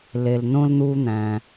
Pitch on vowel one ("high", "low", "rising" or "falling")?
low